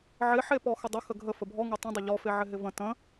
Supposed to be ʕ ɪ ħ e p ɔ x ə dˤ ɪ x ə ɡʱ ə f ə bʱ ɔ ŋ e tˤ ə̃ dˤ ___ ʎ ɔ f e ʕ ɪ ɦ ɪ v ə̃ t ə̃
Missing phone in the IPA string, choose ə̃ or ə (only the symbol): ə